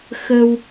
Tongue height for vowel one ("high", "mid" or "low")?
mid